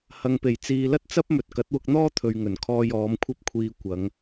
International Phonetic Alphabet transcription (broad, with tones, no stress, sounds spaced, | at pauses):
h ɐ˨ ŋ p e˨˩ j t͡s iː˨ l ɐ˥ t̚ t͡s ɐ˥ p̚ m ɵ˨ t̚ k ɐ˨˥ t̚ w ʊ˧ k̚ n̪ ɔː˥ t̪ʰ ɵ˨ ɥ ŋ ɵ˨˩ n kʰ ɔː˧ j ɔː˨˧ m kʷʰ ɐ˥ p̚ kʷʰ iː˧ kʷ ɐ˨˧ ŋ